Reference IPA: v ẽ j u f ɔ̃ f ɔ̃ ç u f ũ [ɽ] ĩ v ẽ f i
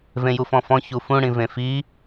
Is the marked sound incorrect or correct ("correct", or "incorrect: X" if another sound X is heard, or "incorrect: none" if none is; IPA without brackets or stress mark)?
correct